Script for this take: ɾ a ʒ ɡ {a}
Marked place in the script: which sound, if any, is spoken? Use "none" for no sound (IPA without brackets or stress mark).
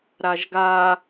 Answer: a